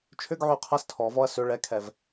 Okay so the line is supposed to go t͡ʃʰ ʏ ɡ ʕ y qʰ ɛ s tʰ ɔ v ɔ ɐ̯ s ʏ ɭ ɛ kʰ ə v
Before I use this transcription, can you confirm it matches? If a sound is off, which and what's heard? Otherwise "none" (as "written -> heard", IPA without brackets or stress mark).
ə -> ɛ